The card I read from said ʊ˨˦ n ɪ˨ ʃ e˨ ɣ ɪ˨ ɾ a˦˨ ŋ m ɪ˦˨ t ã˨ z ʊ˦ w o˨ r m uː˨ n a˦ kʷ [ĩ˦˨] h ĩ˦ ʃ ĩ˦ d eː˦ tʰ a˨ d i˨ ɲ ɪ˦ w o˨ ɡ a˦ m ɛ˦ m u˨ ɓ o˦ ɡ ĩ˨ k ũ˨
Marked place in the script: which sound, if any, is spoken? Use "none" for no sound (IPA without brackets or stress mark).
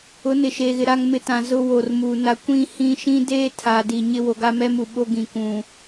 ĩ˦˨